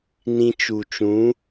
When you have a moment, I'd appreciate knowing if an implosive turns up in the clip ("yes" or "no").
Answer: no